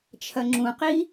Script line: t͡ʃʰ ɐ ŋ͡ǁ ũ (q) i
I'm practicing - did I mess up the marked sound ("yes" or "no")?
no